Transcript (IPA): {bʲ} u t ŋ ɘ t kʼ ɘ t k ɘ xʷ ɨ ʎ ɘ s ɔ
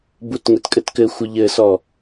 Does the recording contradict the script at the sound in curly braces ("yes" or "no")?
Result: yes